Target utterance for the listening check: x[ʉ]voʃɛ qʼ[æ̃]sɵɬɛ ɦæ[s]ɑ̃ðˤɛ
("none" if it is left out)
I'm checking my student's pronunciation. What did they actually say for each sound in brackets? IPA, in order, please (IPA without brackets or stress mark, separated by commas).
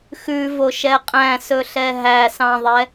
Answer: ʉ, æ̃, s